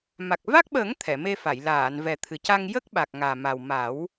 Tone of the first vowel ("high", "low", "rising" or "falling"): low